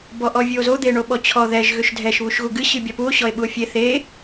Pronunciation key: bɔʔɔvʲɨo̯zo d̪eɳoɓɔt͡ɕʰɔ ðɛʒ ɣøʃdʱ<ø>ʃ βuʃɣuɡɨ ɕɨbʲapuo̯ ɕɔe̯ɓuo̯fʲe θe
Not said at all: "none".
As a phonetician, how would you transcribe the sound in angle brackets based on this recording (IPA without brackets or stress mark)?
ɛ